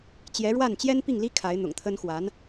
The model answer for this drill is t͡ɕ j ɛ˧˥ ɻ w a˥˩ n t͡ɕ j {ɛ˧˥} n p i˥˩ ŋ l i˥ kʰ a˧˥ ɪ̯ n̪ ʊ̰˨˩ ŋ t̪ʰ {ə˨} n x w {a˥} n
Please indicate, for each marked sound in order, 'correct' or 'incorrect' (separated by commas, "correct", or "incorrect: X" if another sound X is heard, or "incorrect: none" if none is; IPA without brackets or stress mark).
incorrect: ɛ˥, incorrect: ə˥, incorrect: a˧˥